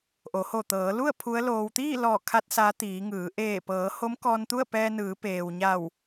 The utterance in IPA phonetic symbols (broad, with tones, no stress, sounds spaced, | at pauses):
ʔ o˩˧ h o˧˩ t̪ ɤː˩˧ l u˥˨ ə̯ pʰ u˧˥ ə̯ l oː˧ w t̪ iː˥˨ l ɔː˧˩ kʰ a˧ t̚ s a˧˥ t̪ iː˩˧ ŋ ɯː˩˧ ʔ eː˧˩ p ɤː˩˧ h o˧˥ m k ɔː˧ n t̪ u˥˨ ə̯ p ɛː˧ n ɯː˩˧ p eː˩ w ɲ a˧˩ w